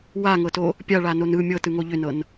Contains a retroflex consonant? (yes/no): yes